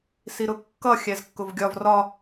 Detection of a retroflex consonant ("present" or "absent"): absent